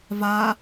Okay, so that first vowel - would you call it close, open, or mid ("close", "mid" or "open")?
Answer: open